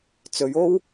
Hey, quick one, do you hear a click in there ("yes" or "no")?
no